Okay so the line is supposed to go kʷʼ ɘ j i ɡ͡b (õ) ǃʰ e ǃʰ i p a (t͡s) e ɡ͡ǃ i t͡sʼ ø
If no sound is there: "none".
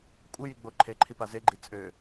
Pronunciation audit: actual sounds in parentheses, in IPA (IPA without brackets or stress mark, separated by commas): o, z